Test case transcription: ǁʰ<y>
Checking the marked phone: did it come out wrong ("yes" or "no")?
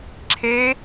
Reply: yes